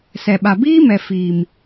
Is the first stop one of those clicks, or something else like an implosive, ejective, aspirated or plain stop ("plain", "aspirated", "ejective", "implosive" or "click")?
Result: implosive